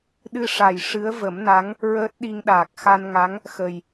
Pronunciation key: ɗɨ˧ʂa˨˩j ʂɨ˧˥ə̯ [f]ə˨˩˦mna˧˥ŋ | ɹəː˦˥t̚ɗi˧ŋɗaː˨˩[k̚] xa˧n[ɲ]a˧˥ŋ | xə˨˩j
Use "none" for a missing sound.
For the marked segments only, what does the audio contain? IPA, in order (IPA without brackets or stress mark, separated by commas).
v, k̚, ŋ